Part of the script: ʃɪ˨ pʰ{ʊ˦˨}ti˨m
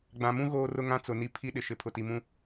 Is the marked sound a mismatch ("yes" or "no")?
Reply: yes